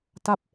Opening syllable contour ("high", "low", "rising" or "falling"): falling